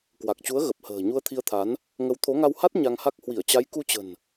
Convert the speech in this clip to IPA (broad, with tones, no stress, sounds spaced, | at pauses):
k w a˨˩ k̚ t͡ɕ u˨˦ ə̯ ɣ ə˨˩ p̚ h ə̤ː˨˩ ɲ u˧ ə̯ t̪ʰ i˧ ə̯ t̪ʰ a˨˦ n | ŋ ə˨˦ w t̪ʰ o˨˦ ŋ a˧ w h a˦˥ t̚ ɲ a˧ ŋ h a˦˥ k̚ h w i˧˩ ə̯ t͡ɕ a˨˦ j k u˧ t͡ɕ ə̤˨˩ n